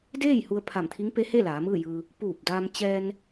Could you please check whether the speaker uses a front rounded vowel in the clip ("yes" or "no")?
no